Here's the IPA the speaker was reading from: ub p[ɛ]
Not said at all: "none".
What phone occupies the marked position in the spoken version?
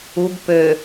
ø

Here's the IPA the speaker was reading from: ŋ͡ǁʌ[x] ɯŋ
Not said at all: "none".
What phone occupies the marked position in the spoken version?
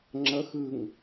x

